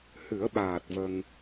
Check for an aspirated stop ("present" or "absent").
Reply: absent